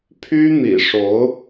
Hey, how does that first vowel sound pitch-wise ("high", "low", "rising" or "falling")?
high